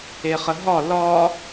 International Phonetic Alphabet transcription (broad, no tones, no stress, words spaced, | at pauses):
eχəɦɒ lɒ